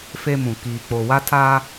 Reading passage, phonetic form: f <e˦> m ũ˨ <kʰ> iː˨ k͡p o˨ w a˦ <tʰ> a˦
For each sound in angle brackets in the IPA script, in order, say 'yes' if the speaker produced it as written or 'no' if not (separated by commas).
yes, no, yes